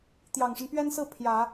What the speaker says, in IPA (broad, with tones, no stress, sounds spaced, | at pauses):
t̪ j ɑ˨˩ ŋ ʂ ə˦ n p ɥ ɛ˥ n s ɹ̩˥˩ pʰ j ä˨˩˦